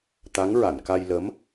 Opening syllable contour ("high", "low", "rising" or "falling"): rising